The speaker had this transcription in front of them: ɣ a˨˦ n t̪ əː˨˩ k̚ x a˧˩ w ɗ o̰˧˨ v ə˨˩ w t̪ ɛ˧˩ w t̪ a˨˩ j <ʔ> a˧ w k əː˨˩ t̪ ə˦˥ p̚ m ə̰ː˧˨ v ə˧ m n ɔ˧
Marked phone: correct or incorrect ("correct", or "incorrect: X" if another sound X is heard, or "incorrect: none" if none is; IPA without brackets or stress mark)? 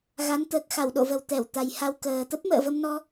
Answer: incorrect: h